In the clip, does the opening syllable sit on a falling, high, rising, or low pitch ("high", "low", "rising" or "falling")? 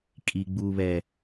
low